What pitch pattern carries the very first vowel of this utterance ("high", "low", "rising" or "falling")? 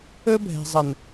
high